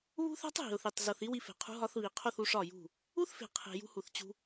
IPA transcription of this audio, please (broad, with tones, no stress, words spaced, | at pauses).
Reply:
βṳ˦θæ̤˦tˤ ɦi̤˨ʊ̯θi˨tˤ zo˨θi˧ wi˧fe̤˨qʰṳ˧ ɦɒ˧θβi˨qʰo˦˨θu˧ ʂɒ˦˨jṳ˦˨ | u˦θfe̤˨ qʰe̤˨ jṳ˧hu˨θt͡ɕṳ˧